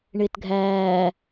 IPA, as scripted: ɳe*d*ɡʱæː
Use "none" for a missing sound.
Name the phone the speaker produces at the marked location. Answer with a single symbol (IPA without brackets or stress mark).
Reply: t